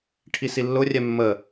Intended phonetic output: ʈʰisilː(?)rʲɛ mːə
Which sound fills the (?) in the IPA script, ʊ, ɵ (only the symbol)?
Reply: ʊ